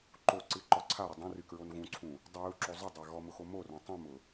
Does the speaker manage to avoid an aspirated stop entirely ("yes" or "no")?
no